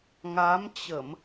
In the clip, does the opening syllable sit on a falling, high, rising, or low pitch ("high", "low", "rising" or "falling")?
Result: rising